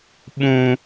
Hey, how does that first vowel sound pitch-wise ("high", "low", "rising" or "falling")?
high